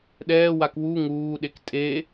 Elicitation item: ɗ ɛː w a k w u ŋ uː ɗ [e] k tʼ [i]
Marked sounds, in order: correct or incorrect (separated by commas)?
correct, incorrect